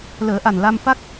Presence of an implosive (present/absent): absent